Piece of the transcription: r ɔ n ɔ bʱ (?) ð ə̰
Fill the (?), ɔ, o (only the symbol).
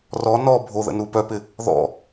o